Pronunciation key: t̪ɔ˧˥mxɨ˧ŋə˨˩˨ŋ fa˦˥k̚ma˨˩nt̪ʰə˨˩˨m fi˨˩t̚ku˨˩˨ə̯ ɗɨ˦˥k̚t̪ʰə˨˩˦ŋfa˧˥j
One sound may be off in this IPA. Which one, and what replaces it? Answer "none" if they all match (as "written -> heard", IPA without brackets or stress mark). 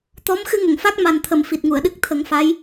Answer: k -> ŋ